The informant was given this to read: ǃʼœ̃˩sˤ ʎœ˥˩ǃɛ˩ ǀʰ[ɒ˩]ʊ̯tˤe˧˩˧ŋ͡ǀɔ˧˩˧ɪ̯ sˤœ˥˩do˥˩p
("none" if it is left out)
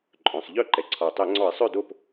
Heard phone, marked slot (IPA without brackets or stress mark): ɒ˩